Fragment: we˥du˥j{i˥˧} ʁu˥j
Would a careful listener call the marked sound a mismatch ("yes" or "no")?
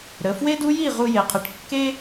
no